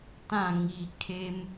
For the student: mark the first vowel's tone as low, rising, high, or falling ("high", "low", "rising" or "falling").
falling